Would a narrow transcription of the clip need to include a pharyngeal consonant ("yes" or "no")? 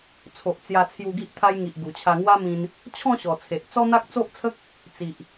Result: no